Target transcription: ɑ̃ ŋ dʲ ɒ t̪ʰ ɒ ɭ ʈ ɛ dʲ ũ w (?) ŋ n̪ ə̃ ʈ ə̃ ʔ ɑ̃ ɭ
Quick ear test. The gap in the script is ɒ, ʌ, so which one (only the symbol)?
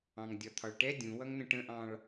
ʌ